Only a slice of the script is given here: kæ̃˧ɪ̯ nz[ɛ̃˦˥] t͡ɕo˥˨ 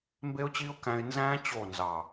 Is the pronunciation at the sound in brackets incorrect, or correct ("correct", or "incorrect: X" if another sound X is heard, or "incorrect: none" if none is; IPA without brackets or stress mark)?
incorrect: æ̃˦˥